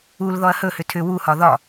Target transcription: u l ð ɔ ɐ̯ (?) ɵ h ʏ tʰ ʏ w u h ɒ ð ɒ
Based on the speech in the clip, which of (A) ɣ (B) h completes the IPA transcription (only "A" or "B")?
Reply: B